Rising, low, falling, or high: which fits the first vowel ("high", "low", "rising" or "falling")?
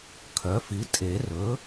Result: rising